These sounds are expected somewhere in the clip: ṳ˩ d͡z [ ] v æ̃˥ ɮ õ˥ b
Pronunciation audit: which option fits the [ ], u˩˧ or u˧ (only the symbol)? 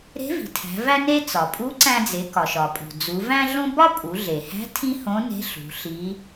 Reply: u˩˧